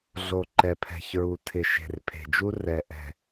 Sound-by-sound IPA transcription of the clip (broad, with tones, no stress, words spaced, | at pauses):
ɮo˨ǃɛ˨pʰɛ̤˨çɹu˨ tʰɪ˨ʃe̤˨r pʰe̤˨d͡ʒu˦ rɛ˨ʔɛ̤˨